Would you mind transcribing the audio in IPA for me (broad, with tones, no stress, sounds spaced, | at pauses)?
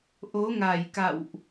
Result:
ʔ o˨˦ ŋ a˧˩ j k a̰˧˨ w ʔ